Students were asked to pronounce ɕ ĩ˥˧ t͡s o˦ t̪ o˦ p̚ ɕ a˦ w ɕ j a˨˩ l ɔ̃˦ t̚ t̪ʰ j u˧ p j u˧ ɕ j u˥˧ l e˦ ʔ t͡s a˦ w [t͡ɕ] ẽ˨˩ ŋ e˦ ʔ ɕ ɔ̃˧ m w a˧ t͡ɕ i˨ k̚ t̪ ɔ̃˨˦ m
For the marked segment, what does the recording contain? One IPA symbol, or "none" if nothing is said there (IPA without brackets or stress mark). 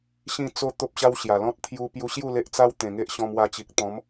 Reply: t̪